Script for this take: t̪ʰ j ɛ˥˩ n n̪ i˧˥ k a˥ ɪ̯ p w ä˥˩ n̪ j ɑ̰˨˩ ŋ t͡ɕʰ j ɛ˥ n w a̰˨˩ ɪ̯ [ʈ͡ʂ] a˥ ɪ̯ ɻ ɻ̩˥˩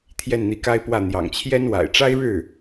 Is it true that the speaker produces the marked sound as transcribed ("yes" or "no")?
yes